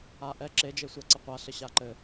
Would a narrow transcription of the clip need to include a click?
yes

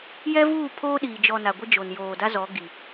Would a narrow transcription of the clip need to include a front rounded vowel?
no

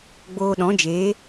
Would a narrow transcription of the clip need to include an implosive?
yes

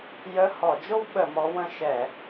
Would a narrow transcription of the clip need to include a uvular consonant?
no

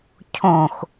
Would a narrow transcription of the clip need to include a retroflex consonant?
no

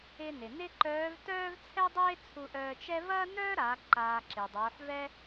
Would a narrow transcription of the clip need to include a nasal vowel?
no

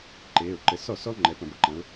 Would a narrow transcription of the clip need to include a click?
yes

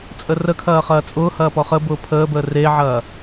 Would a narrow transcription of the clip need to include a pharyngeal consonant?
yes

